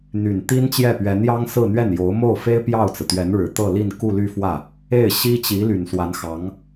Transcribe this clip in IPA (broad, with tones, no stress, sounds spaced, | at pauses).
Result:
n̪ y˨˩ n t̪ i˥ n t͡ɕ j ɛ˥˩ p ɥ ɛ˧˥ n j ɑ˥ ŋ s ɹ̩˥˧ n̪ ɥ ɛ˥˩ n j o˧˥ ʊ̯ m o˥˩ ʊ̯ f e˥ ɪ̯ p j ɑ˥˩ ʊ̯ t͡s ɹ̩˩ t̪ ɥ ɛ˧˥ n ɻ ɻ̩˨˩ t̪ ɤ˥˧ l i˥˧ n k u˥˧ l y˥˧ f w ä˥˩ | e˥˩ ɪ̯ ɕ i˥ t͡ɕ i˧˥ l y˨˩ n s w a˧˥ n x ɑ˧˥ ŋ